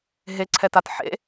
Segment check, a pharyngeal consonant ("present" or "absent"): present